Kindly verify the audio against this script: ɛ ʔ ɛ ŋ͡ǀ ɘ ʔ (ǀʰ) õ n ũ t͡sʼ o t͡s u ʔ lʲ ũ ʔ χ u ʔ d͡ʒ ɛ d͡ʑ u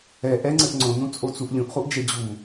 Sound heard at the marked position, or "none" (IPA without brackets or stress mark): ŋ͡ǀ